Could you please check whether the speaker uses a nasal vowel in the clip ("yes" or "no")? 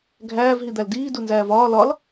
no